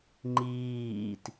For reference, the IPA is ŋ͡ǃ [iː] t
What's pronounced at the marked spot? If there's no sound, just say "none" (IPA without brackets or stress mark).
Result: iː